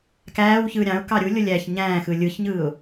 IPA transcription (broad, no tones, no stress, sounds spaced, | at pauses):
k æː w ç ɯː ɾʲ ɑ̃ ʊ̯ k ɑ ɾʲ u lʲ o lʲ æ ç ɲ æ̃ː x ɯ lʲ ɯ ç ɲ ɯː ʊ̯